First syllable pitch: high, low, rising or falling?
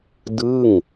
falling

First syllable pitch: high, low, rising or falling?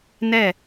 falling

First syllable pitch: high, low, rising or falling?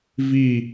falling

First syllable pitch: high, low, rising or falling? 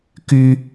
high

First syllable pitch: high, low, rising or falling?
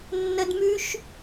high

